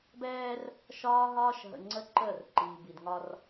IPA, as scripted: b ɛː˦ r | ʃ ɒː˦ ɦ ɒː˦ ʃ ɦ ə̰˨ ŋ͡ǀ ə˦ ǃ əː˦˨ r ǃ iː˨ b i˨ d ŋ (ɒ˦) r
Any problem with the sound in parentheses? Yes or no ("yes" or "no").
no